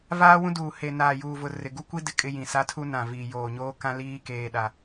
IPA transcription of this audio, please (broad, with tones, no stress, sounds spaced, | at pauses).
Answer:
v aː˦ w ũ˦ d uː˨ h e˨ n aː˨ j uː˨ v ʊ˨ r ɪ˨ ɡ u˦ kʷ i˦ d ɪ˦ kʼ ɪ˦ j ĩ˨ s a˦ tʰ u˦ n ã˨ v iː˨ j oː˨ ɲ oː˦ k ã˦ l iː˦ k eː˦ ɗ a˦